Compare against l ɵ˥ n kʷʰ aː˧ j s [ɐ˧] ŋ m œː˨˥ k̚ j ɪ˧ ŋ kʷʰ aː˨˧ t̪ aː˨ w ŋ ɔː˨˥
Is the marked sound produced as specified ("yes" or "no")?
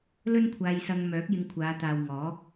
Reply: yes